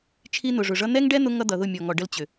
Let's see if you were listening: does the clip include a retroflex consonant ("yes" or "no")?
yes